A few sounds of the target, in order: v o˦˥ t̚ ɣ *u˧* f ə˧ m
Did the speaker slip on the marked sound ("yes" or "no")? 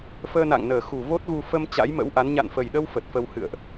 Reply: no